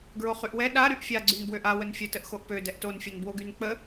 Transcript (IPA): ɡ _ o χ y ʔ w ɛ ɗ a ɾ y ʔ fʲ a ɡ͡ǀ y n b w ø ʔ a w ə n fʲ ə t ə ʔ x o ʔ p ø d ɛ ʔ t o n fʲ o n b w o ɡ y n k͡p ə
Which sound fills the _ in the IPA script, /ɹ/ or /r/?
ɹ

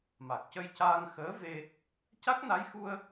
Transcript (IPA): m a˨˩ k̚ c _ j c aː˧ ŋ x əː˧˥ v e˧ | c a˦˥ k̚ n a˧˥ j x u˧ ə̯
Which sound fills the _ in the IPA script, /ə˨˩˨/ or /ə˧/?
ə˧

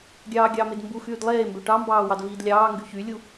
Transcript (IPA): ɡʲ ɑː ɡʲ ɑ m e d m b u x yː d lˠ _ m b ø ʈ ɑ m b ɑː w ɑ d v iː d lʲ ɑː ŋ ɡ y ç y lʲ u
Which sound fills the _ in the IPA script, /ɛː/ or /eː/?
eː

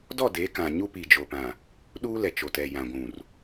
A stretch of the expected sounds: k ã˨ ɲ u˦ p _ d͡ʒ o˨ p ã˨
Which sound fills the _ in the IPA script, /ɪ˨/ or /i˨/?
i˨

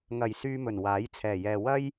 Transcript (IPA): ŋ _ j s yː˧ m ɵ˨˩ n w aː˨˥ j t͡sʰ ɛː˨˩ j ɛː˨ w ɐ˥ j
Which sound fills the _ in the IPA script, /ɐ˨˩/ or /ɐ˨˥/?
ɐ˨˩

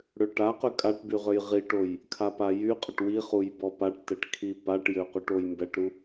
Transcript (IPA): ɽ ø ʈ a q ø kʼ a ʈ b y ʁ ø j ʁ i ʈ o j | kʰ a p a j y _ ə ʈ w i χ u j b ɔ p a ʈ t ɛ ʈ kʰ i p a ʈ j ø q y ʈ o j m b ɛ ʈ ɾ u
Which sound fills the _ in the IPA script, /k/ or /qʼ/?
qʼ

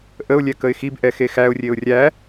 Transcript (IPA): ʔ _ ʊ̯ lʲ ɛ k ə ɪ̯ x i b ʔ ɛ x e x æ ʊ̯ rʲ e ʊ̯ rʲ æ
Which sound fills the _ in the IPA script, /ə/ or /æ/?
ə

